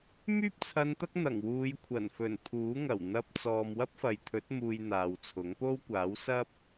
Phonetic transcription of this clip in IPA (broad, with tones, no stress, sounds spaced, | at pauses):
m yː˥ p̚ t͡sʰ ɐ˧ n t̪ ɐ˥ k̚ n̪ ɐ˨˩ ŋ w uː˨˧ j kʷʰ ɐ˨˩ n f ɵ˨˩ n pʰ uː˨˥ ŋ ɐ˨˩ w n̪ ɐ˧ p̚ t͡s ɔː˨ m w ɐ˥ p̚ f ɐ˨ j t̪ʰ ɵ˨˥ t̚ m uː˨ j n̪ aː˨ w t͡sʰ ʊ˨˥ ŋ p o˥ w kʷ aː˨˥ w s ɐ˥ p̚